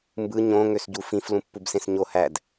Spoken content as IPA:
mbɯ ɲõ ŋøsɟufĩf lũpːubsẽsɲo hæd

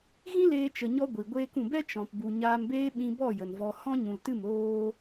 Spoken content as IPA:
ɣĩ˦leː˧ t͡ʃə˧ɲɔ˦ɡʷi˨ ɡʷeː˧kũ˨bɛ˦ t͡ʃɔ̃˨pbu˨ ɲaː˧mbeː˦ɓĩ˧ bɔ˦˨ jə˨nvɔ˧ hɔ̃˦ɲũ˨ltɨ˦˨m oː˦

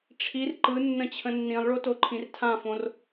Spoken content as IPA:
ʈ͡ʂʰir ǃɯnːə̃ t͡ɕʰə̃nːĩlˠɭo toǃʰĩrtʰãfõr

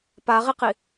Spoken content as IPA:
paʁiqi

